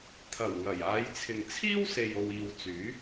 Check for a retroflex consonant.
absent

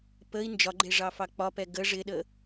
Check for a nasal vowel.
absent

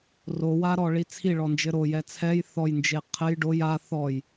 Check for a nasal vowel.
absent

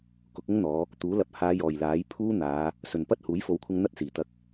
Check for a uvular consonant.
absent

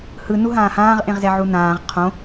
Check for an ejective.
absent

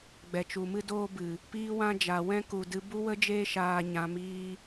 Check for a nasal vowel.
present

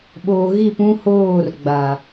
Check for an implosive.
present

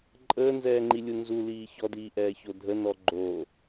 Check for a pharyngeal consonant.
absent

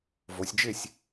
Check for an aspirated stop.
absent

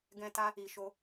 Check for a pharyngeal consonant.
absent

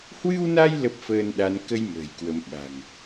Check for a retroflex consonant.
absent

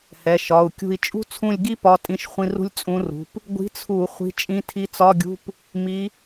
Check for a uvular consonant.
present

